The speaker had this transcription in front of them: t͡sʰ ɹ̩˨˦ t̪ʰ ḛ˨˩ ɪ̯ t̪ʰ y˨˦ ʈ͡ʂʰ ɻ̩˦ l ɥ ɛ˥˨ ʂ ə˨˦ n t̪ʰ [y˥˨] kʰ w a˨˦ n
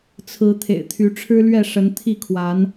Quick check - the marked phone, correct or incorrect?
incorrect: i˥˨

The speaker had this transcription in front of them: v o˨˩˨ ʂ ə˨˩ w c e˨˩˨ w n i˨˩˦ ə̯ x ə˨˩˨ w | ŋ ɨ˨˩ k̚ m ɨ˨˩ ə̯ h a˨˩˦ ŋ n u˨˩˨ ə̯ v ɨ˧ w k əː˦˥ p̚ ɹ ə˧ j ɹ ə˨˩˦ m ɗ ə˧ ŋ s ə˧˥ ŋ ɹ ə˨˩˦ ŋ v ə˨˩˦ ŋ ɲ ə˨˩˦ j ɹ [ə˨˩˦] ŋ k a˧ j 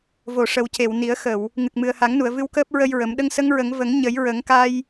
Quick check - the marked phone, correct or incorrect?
correct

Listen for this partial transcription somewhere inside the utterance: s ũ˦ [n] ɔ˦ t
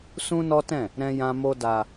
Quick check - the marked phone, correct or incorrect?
correct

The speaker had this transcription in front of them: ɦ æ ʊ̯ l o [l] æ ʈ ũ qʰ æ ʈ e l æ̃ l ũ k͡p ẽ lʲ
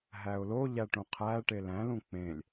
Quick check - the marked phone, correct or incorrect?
incorrect: ʎ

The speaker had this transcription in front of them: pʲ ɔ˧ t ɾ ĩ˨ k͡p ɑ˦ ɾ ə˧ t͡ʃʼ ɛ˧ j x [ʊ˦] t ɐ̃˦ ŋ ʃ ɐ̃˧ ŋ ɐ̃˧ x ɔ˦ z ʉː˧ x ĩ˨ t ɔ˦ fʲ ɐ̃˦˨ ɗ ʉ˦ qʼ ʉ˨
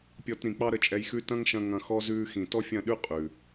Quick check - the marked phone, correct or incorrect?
incorrect: ʉ˦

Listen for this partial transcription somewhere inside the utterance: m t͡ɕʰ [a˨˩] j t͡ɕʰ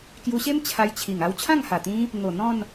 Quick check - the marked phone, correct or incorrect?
incorrect: a˧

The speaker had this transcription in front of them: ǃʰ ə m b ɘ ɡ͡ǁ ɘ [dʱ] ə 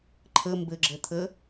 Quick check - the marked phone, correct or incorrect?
incorrect: t̪ʰ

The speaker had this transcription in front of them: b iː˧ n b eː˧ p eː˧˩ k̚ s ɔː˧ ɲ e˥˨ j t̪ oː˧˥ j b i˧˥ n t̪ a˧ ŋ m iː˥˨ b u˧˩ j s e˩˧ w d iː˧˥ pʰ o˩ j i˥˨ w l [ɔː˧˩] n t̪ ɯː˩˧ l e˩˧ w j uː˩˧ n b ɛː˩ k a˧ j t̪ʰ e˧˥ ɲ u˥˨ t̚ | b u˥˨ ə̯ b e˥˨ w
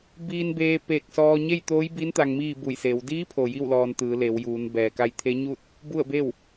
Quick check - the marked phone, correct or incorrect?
incorrect: ɔː˧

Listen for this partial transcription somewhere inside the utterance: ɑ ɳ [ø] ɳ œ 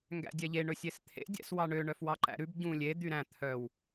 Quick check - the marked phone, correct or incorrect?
correct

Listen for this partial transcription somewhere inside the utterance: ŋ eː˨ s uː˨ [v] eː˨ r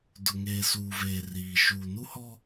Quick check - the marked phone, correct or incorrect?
correct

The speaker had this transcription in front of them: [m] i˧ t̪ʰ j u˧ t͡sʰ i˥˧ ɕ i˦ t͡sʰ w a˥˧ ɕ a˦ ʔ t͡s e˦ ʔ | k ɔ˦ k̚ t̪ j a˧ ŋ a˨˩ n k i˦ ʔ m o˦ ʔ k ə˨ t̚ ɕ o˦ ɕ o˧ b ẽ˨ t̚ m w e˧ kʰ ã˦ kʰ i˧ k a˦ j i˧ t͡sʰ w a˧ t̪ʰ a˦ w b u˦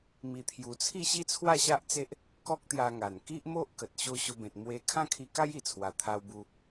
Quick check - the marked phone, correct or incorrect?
correct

